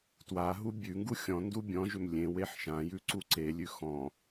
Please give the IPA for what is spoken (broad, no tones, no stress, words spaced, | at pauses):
twaɦu bʲʉŋɡu xʲɔ̃ ndubʲɔ̃ʒʏm lʲẽ weħʃãjʉ ǀuǀelʲʉ xɔ̃